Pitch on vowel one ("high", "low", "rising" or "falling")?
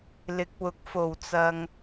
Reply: rising